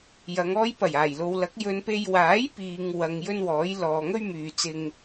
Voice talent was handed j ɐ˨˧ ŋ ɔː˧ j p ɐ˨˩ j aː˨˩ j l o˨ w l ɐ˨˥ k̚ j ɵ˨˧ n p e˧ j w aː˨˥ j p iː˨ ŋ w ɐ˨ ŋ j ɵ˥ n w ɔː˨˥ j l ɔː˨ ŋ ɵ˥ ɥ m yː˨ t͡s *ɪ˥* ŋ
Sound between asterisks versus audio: incorrect: ɪ˧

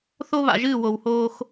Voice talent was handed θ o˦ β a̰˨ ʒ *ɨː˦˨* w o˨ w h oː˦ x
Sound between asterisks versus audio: correct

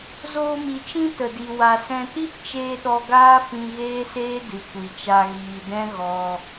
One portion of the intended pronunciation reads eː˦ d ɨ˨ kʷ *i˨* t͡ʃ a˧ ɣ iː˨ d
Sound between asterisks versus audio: correct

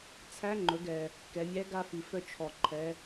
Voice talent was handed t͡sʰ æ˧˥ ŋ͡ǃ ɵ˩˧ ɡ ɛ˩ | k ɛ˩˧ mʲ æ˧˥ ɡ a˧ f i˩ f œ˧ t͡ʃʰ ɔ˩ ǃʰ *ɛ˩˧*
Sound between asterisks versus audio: correct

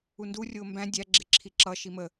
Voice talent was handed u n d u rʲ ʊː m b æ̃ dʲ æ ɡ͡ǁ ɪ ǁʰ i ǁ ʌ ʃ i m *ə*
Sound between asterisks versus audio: correct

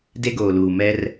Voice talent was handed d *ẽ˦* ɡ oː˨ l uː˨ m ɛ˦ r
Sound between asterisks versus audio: incorrect: e˦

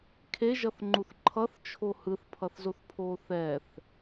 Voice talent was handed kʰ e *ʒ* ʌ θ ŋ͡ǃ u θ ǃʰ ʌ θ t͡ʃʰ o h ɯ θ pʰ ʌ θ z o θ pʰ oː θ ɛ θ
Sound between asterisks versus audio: correct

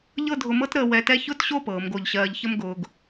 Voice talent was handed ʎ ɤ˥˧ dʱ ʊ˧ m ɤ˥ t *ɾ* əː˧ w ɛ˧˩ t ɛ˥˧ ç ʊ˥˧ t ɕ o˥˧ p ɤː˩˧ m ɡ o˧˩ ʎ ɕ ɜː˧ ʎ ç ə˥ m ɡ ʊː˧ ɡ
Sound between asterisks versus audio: correct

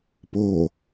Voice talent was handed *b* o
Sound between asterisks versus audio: incorrect: p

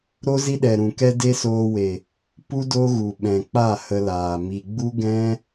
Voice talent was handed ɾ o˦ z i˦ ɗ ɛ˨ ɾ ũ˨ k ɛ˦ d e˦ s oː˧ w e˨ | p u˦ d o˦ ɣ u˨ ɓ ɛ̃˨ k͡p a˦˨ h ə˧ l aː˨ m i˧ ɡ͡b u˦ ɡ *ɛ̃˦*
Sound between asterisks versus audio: correct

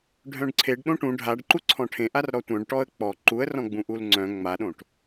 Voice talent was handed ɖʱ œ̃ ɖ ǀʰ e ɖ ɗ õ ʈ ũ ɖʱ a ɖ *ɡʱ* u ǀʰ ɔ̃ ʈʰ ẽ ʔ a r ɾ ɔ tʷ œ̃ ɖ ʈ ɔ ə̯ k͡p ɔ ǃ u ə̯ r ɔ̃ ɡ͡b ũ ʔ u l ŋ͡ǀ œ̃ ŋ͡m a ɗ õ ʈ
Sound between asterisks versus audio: incorrect: ǃ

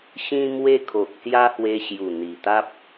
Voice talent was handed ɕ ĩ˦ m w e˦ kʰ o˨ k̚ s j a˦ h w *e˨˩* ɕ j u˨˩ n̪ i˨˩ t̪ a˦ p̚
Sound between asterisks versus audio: incorrect: e˧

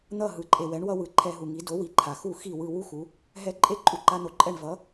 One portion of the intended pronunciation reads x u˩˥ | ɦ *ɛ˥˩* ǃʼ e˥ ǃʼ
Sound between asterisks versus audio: incorrect: ɛ˧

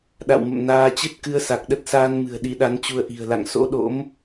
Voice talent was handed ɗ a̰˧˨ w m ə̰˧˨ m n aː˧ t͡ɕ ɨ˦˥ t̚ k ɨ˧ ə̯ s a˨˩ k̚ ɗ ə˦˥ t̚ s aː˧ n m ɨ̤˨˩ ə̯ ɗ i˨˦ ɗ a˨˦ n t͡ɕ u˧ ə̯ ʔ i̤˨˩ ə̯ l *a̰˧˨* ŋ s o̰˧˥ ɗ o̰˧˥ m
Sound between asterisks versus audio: correct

